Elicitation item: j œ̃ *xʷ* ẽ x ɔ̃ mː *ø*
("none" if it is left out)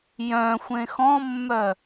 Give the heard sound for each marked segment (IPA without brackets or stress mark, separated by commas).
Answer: xʷ, œ